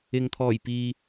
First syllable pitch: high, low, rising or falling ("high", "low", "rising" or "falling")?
low